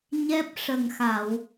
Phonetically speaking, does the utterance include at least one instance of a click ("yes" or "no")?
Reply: no